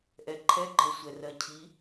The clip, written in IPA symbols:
ʔ ɛ ǃʰ ɛ ɡ͡ǃ ɜ sʷ ɛ r ɜ cʰ i

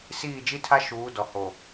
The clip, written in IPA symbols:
s iː˦˨ d͡ʒ i˦ tʰ a˦ ʃ uː˨˦ d ɔ˨ h o˨

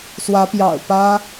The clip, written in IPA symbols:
s w ä˨˦ p j ɑ̰˨˩ ʊ̯ p ä˦

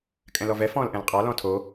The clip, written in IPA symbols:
kʼ ɛ̃ l ɔ v ɛ f ɔ̃ l ʔ ɛ̃ l qʼ ɑ l ɔ̃ tʰ o

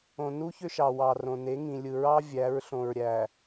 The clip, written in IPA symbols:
õ˨ n u˦ ç ø˦ ʃ ɑ˨ w ɑ˨ r õ˨ n e˨˦ ŋ ĩ˨ lʲ ɯ˨ ɹ ɑ˦ vʲ æ˨˦ ɹ ɬ õ˨ ɹ ɾʲ æ˨

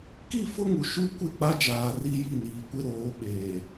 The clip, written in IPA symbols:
k i˦˨ f ʊ˦ ŋ u˨ ʃ u˦ kʷ ɪ˦˨ k͡p a˦ d͡ʒ aː˨ r i˦ j i˦˨ n iː˨ kʷ ɪ˦ ɾ oː˨˦ ɓ eː˨

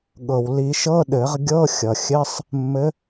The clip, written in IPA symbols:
ɠ ɤ˩ w l i˨˩˦ ʃ ɤ˧˥˧ ɗ ɘ˨˩˦ ʁ ɡʲ ɤ˧˥˧ xʲ ʌ˩ xʲ ɘ˧˥˧ sˤ | mː ɘ˨˥

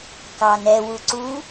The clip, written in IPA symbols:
k ɑ n ɛ w u ǀ u

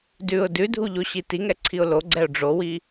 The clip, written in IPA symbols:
d ʉ ʊ̯ d ʉ dʱ u ʎ o ɕ i t i ŋ ɛ ǀʰ i ʊ̯ l o ɡ͡ǀ ɛ ʊ̯ ɖ͡ʐ o w i

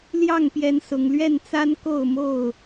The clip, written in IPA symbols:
l j ɑ˥˨ ŋ p j ɛ˨˦ n s ʊ˨˩ ŋ l ɥ ɛ˥˨ n t͡s a˦ n k o˥˨ ʊ̯ m o˥˨ ʊ̯

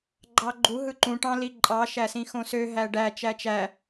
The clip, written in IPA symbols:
ɡ͡ǃ ɑ ɡ͡ǃ u ɦ ɯ ǃ ũ ʈ ɑ̃ l i ǃʼ ɑ ʃ æ s ĩ x õ s ø ɦ æ ɖ æ t͡ʃ æ t͡ʃ æ

